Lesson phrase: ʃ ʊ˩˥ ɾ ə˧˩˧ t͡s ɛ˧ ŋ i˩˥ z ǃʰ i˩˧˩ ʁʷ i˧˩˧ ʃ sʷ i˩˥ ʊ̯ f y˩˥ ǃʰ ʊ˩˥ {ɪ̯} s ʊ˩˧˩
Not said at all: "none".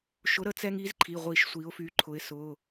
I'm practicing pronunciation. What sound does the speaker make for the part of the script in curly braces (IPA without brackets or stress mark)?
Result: ɪ̯